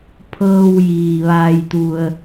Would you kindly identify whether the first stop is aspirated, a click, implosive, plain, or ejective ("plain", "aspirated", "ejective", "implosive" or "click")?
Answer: aspirated